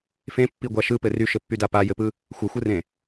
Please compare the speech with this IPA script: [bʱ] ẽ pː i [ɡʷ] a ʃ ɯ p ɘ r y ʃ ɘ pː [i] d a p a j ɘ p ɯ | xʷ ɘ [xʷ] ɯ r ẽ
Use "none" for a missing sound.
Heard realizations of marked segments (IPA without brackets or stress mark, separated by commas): f, ɡʷ, y, xʷ